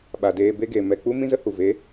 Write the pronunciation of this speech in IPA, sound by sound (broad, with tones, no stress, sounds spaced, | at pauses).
ɓ a˨ d eː˧ b e˦ ɡ e˨ m ɛ˧ k͡p u˦ m ĩ˦ z ə˦ h u˨ v e˨˦